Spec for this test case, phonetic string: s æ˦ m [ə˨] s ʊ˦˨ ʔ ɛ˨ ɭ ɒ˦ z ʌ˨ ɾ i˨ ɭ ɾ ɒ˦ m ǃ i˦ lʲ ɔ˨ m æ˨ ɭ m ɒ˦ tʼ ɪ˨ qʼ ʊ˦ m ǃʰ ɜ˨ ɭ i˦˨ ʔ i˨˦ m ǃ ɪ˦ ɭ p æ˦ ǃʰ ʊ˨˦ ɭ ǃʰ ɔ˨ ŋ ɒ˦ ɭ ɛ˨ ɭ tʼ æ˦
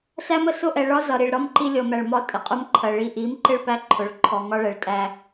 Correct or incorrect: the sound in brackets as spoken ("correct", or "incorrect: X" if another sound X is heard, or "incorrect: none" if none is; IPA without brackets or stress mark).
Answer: correct